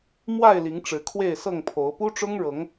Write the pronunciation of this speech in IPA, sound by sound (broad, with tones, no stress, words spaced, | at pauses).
mwa˥˨ɪ̯li˨˦ŋ ʈ͡ʂɻ̩˨˦kʰwe˥˨ɪ̯sɤ˥˨ŋpʰo˨˦ʊ̯ pu˦ʈ͡ʂʊ˦ŋɻɤ˨˦ŋ